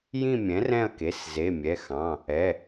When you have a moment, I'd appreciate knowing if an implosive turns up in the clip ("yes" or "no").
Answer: no